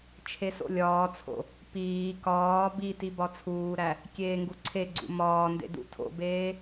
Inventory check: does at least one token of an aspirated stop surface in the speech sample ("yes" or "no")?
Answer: yes